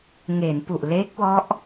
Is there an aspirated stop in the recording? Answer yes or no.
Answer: no